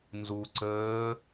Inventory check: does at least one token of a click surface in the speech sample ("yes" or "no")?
yes